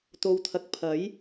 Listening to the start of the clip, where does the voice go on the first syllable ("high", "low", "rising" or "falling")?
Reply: low